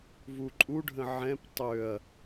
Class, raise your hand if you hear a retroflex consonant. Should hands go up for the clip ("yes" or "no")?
yes